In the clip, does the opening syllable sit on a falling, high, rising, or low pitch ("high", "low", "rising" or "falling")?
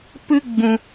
high